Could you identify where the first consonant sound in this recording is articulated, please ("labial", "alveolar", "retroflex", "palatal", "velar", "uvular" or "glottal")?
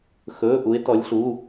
velar